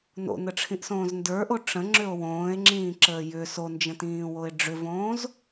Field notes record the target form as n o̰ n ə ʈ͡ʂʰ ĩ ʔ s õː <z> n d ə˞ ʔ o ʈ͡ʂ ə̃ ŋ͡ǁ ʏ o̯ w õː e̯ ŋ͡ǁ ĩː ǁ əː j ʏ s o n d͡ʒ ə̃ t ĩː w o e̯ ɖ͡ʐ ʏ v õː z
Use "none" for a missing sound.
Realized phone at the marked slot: z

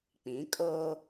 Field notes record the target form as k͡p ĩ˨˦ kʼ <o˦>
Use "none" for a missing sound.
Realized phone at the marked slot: oː˦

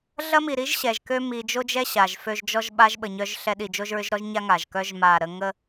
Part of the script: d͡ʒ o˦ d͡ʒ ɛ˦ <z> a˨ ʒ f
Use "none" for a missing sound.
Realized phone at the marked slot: ɕ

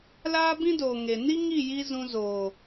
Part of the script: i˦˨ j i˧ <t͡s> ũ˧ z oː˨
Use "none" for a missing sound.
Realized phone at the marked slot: z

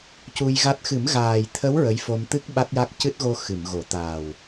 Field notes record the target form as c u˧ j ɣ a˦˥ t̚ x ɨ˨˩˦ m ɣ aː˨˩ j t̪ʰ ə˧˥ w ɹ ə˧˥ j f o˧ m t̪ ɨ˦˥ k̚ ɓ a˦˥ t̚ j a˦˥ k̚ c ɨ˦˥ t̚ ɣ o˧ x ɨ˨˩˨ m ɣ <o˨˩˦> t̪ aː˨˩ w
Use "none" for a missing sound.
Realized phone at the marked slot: o˨˩˦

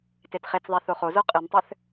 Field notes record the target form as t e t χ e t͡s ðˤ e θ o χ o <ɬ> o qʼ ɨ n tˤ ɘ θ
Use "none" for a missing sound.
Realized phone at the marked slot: z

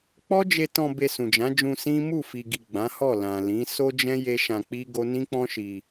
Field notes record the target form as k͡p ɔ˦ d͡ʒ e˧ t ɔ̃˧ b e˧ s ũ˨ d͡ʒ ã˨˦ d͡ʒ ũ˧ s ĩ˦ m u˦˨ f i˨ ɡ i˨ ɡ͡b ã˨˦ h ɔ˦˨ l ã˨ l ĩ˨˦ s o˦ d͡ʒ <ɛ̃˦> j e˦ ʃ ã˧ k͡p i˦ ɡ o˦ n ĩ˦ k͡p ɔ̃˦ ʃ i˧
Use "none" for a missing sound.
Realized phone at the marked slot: ɛ̃˦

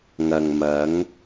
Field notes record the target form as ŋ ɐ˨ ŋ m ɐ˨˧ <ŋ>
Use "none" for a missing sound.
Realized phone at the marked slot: ŋ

